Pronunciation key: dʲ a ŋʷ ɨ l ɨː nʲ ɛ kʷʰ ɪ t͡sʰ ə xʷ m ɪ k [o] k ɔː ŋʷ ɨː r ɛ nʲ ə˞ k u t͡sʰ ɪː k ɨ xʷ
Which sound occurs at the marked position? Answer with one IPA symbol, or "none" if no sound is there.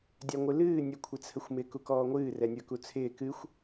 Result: u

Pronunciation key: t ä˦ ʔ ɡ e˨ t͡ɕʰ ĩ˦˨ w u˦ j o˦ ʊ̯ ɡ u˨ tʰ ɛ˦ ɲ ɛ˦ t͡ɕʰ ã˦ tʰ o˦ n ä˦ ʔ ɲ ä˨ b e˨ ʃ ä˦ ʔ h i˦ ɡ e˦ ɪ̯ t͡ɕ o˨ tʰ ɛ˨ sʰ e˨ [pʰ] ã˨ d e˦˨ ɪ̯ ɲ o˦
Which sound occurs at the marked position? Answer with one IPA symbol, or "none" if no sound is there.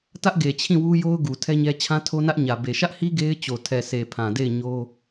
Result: pʰ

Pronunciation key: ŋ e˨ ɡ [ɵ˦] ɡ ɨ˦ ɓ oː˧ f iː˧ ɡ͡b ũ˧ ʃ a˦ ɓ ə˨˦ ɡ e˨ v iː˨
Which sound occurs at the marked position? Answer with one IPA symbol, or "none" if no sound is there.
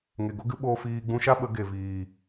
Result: o˦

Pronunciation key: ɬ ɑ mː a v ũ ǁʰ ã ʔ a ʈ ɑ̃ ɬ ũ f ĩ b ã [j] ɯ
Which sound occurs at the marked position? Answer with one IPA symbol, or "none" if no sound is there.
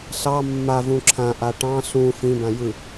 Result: j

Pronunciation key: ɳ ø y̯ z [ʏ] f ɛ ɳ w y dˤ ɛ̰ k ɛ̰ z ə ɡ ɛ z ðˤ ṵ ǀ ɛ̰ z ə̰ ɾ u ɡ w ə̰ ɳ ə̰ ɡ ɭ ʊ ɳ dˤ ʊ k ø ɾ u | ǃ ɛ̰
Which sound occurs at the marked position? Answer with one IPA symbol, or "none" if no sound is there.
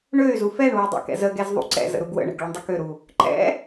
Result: u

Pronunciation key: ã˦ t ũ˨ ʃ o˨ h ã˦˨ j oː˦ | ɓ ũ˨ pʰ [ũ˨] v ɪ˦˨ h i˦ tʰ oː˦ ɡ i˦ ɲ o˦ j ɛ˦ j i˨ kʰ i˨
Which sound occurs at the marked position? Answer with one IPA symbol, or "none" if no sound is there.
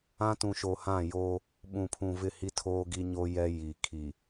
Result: ũ˨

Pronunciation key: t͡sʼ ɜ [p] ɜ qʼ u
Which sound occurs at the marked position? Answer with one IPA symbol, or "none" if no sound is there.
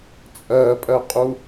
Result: pʼ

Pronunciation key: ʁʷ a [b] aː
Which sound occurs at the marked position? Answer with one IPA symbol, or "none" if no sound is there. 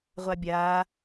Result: bʲ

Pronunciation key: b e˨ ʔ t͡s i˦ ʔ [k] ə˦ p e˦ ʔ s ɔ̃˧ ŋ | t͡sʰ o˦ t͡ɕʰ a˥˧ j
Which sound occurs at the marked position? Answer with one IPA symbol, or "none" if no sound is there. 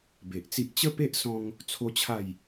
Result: t͡ɕ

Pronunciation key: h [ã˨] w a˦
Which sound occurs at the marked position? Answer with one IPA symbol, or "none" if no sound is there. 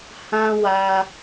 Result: ã˦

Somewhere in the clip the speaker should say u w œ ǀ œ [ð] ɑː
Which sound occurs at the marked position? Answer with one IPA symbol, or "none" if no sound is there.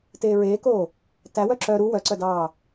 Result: d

